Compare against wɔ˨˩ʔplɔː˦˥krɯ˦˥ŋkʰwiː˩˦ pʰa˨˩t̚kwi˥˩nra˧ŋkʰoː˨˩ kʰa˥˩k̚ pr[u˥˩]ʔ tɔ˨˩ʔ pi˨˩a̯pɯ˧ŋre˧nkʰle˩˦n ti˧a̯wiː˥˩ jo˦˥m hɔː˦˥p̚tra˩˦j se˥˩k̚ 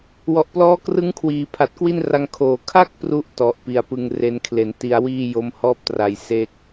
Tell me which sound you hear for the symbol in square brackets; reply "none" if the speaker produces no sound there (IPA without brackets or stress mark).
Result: u˥˩